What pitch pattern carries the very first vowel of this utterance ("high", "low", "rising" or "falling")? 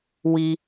low